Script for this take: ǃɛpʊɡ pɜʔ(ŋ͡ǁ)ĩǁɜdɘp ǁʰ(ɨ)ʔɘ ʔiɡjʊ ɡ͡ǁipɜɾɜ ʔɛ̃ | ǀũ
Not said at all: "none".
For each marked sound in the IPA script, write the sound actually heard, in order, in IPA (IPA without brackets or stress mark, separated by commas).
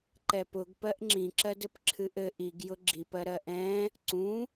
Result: ŋ͡ǁ, ɨ